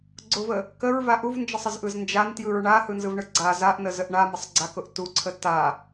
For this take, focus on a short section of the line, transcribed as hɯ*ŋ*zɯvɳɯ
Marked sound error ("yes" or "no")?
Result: yes